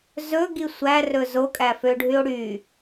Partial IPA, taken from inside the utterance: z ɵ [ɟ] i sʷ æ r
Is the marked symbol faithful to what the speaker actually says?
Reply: no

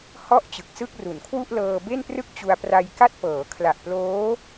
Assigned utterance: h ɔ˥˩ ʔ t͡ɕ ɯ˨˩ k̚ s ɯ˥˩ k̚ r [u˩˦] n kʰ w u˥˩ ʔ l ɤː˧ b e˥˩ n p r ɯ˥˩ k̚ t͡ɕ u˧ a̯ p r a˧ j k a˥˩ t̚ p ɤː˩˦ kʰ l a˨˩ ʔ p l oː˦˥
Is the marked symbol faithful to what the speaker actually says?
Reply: yes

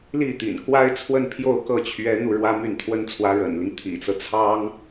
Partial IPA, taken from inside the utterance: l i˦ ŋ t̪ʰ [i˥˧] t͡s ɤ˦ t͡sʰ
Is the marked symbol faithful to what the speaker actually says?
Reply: no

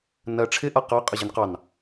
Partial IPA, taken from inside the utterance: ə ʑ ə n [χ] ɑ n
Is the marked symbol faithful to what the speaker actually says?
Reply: no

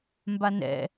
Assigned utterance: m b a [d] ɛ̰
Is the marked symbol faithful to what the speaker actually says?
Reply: no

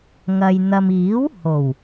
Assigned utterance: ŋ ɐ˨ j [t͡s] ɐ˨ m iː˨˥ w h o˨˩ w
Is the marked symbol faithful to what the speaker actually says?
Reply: no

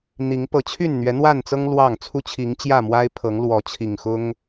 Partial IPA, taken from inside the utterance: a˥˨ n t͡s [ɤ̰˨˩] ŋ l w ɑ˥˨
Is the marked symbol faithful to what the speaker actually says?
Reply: no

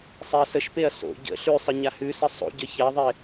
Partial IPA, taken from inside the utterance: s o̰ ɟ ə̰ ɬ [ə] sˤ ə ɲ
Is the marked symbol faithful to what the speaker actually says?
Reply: no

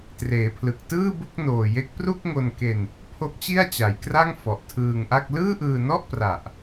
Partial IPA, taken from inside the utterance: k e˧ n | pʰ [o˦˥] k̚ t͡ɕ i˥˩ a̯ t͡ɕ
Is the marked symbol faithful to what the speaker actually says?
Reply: yes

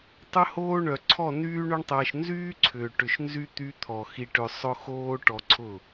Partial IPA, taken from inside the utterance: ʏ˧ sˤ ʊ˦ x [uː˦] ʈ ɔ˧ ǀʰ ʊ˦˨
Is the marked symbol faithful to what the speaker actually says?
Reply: no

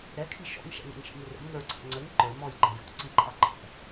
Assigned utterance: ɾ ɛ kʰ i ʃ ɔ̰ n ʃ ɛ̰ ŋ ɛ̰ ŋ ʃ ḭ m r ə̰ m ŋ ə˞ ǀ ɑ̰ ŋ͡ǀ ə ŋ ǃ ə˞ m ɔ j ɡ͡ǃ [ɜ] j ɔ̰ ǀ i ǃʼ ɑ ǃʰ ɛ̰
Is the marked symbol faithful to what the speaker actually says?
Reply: no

